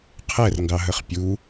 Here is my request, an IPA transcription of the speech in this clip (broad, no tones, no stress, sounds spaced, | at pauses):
qʰ ɛ r ŋ ɡ ɑ ɦ ə χ pʲ u